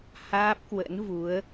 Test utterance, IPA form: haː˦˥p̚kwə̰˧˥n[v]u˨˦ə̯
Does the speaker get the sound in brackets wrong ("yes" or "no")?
no